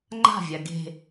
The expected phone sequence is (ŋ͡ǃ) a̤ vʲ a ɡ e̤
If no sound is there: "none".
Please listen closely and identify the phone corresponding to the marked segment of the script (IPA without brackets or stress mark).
ŋ͡ǃ